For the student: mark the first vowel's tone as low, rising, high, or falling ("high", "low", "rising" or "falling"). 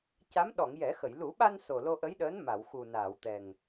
rising